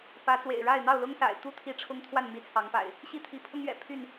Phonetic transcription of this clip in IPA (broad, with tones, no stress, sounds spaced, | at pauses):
p ä˨˦ t͡s w ḛ˨˩ ɪ̯ ɻ a˥˨ ɪ̯ n̪ ɑ˥˨ ʊ̯ l ʊ˦ ŋ s a̰˨˩ ɪ̯ t̪ u˥˨ t̪ʰ i˦ ʈ͡ʂʰ ʊ˦ ŋ t̪ʰ w a˥˨ n m i˨˦ t͡sʰ ɑ˨˦ ŋ p a̰˨˩ ɪ̯ | ɕ i˦ t̪ʰ i˨˦ pʰ ʊ˦ ŋ ɥ ɛ̰˨˩ pʰ y˥˨ n